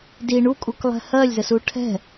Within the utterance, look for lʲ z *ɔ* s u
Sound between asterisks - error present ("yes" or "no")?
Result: yes